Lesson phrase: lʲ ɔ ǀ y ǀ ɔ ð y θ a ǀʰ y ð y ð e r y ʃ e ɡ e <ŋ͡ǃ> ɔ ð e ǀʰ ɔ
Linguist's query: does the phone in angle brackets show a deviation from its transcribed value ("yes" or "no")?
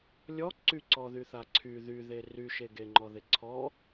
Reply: no